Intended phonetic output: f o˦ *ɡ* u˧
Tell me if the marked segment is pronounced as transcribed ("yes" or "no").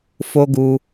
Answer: yes